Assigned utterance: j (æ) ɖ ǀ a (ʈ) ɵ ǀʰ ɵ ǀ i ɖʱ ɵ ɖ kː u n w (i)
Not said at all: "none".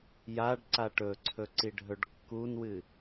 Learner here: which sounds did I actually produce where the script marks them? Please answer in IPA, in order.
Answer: a, ʈ, ɨ

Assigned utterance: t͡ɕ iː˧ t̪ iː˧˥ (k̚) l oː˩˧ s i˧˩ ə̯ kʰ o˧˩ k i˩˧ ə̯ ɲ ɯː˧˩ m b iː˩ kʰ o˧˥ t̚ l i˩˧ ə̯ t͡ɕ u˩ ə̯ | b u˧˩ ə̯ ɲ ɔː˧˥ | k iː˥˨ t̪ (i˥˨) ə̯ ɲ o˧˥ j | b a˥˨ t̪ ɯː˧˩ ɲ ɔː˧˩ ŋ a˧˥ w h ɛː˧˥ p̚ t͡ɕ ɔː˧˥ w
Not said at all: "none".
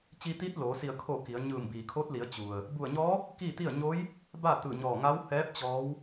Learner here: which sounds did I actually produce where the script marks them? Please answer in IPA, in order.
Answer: t̚, i˥˨

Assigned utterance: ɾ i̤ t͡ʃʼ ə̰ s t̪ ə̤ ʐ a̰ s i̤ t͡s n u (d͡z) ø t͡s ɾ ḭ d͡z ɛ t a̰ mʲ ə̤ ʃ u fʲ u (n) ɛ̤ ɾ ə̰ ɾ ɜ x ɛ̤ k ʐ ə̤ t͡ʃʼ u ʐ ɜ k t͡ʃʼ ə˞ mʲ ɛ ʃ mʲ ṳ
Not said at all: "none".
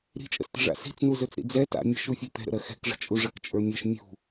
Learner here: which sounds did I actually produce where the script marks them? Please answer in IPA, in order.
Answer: z, t̪

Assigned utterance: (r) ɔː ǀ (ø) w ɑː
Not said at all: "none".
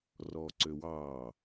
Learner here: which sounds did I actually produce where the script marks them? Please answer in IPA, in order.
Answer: r, ø

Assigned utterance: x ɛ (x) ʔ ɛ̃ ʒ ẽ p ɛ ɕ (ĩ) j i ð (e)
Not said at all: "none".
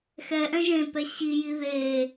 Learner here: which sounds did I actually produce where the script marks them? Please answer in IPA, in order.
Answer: none, i, e

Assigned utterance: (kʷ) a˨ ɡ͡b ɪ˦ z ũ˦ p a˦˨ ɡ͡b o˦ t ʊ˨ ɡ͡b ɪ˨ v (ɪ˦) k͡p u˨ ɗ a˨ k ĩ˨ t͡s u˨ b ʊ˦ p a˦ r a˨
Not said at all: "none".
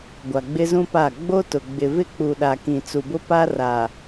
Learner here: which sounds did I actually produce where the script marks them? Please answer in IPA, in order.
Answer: ɡʷ, ɪ˦

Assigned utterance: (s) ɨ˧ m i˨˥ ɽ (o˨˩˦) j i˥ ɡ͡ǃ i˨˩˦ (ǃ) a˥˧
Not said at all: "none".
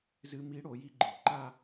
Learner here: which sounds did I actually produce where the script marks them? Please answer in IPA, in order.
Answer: z, o˨˩˦, ǃ

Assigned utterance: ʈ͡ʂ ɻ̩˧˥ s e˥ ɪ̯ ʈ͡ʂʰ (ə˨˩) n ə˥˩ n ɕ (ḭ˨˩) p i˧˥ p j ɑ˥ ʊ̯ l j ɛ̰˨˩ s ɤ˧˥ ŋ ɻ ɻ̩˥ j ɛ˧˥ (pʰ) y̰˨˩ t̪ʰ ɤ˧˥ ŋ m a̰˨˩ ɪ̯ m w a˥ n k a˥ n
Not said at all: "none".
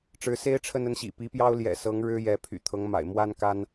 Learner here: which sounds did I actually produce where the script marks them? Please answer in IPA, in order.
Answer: ə˥˧, ḭ˨˩, pʰ

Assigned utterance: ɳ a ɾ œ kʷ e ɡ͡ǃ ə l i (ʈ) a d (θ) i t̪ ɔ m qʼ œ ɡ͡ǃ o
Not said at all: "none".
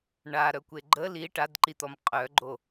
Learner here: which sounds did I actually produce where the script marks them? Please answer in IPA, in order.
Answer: ʈ, ǃ

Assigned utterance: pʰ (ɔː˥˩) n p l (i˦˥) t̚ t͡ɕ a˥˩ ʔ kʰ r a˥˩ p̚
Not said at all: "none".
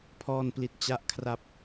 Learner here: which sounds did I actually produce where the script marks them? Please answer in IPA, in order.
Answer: ɔː˥˩, i˦˥

